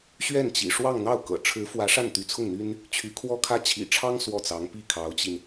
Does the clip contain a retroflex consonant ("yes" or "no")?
yes